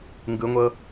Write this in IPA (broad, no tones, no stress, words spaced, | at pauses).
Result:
ŋɡɯŋʷɤ